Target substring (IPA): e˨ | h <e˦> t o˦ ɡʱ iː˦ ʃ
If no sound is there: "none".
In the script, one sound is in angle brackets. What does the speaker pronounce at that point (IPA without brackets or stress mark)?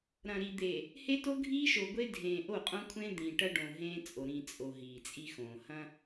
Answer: e˦